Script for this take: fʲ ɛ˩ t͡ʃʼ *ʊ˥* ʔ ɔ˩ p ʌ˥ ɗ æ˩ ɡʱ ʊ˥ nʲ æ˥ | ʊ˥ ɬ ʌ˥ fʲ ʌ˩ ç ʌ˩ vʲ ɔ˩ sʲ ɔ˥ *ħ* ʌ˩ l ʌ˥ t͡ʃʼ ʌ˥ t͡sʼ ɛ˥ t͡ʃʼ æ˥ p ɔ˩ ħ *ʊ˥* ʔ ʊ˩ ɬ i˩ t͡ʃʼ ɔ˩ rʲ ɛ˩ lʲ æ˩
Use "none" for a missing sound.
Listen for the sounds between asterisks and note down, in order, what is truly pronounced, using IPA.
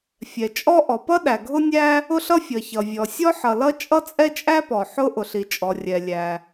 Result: ɔ˥, ħ, ʊ˥

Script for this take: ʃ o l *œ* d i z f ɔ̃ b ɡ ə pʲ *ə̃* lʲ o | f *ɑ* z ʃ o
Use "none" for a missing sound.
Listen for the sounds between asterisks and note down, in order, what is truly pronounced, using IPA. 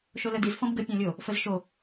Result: œ, ɔ̃, ə

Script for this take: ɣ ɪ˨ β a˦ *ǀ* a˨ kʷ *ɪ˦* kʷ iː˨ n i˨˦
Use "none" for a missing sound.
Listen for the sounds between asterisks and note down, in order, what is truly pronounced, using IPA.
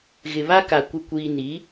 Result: k, ɪ˨

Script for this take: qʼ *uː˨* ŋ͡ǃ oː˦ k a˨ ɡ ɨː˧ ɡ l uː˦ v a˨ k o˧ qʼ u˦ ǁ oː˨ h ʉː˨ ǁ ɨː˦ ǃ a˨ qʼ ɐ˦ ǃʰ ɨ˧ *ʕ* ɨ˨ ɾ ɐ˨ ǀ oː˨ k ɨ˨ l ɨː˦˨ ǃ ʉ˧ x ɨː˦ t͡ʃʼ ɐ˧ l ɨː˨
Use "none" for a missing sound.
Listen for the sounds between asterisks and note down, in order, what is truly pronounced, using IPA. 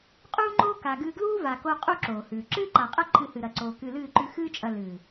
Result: uː˦, h

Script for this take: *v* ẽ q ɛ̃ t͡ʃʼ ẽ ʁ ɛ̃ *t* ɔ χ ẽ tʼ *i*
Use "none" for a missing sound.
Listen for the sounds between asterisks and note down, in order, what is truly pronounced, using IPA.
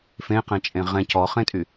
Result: f, c, y

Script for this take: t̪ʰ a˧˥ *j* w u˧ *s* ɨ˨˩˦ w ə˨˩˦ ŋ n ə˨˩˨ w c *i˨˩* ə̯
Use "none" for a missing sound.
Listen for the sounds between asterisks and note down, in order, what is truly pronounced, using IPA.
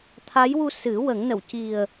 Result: j, s, i˨˩

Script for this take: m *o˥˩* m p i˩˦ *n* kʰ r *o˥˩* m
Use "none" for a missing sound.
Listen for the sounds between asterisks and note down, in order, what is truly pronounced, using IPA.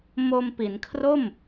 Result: o˧, n, o˥˩

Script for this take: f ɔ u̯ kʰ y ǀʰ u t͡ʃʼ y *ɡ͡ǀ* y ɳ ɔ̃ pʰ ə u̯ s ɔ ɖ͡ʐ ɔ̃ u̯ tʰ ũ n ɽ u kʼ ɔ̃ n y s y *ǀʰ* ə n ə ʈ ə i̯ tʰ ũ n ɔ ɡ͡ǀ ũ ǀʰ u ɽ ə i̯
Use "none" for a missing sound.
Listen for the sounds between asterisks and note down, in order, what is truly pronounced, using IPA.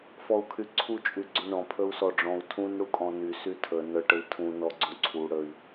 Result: ɡ͡ǀ, tʰ

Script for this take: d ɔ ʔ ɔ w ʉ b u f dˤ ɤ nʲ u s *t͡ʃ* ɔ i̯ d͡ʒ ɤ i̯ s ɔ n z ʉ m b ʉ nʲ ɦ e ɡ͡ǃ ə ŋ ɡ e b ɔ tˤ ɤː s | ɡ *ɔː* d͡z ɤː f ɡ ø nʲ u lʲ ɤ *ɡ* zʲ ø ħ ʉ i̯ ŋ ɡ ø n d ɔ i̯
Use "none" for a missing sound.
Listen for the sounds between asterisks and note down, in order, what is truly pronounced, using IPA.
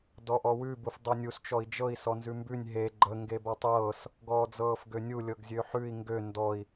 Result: t͡ʃ, ɔː, ɡ

